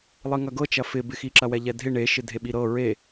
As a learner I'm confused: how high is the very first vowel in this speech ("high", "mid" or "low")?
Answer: high